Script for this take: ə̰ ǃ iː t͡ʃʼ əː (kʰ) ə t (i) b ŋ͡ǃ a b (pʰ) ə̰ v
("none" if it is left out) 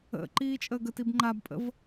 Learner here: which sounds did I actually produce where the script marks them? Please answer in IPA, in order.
ɡ, i, pʼ

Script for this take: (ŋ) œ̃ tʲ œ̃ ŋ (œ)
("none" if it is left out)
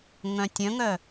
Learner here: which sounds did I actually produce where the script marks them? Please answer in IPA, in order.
ŋ, œ

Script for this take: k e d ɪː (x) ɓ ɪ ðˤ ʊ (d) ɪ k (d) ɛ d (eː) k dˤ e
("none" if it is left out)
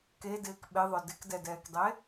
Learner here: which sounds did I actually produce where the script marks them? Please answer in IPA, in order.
k, d, d, ɛː

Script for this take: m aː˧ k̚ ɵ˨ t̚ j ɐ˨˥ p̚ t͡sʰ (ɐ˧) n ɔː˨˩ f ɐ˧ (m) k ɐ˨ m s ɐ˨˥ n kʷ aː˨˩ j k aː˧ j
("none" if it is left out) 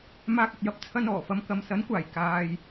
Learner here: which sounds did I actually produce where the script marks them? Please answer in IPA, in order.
ɐ˧, m

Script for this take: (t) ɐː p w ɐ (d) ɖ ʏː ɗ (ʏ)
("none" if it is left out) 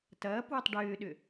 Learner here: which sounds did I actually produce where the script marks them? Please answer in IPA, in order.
t, tˤ, ʏ

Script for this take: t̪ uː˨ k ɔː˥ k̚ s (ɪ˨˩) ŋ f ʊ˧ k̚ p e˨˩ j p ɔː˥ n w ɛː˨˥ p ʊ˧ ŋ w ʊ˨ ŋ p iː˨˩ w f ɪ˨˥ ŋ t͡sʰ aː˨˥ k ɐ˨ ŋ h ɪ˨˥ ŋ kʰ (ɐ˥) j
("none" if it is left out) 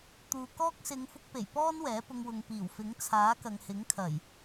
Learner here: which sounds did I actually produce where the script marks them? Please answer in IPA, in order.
ɪ˨˧, ɐ˨˩

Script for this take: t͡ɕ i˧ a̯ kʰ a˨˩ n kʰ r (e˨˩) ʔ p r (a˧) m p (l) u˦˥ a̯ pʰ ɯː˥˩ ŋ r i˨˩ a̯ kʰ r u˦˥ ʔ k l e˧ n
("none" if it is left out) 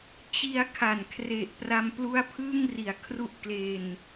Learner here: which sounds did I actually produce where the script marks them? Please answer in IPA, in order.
e˨˩, a˧, l

